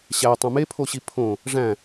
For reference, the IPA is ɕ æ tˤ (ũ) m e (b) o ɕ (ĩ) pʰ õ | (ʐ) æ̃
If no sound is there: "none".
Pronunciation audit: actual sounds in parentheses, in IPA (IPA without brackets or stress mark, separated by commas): õ, pʰ, i, ʐ